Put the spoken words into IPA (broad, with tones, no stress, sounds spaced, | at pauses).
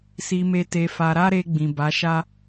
s i˧ m e˧ t e˧ f a˧ ɾ a˦ ɾ e˧ ɡ͡b ĩ˨ b a˨˦ ʃ a˦